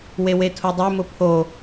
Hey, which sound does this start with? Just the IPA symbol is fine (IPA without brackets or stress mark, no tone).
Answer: w